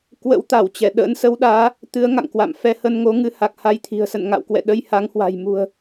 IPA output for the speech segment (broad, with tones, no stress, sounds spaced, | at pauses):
k w ə̰˧˥ w t̪ a˧˩ w t͡ɕ ɛ˧˩ ɗ ə̰ː˧˥ n s ə˨˦ w ɗ aː˨˦ | t̪ ɨ˨˦ ə̯ ŋ a̰˧˨ ŋ k w a̰˧˨ m f ɛ˧ h ə˧ n ŋ o˨˦ ŋ ɨ˨˦ h a˨˩ k̚ h a˧ j t̪ʰ i̤˨˩ ə̯ s ə̰˧˨ n ŋ a̰˧˨ w k w ɛ̰˧˨ ɗ ə˧ j h a˨˦ ŋ h w a̤˨˩ j m ṳ˨˩ ə̯